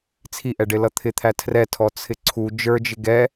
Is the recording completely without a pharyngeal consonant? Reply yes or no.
yes